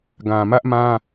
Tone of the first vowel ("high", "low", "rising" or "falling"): low